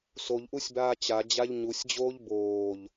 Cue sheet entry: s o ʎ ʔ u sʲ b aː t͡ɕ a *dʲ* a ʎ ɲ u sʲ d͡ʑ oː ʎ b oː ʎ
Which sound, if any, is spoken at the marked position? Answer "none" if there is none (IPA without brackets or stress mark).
d͡ʑ